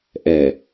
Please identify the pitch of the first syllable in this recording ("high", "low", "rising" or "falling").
low